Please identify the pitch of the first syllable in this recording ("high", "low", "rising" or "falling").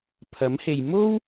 rising